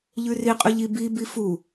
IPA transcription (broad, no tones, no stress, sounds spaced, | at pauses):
ʎ ʉ r i qʼ ɵ ʎ i b i b i f u